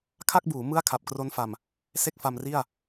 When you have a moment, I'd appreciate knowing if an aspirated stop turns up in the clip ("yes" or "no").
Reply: yes